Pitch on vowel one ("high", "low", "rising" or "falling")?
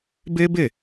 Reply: high